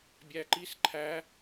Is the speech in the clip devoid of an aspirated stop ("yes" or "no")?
no